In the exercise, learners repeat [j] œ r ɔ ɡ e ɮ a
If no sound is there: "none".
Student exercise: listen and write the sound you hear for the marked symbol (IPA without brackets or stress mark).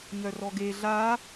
ɲ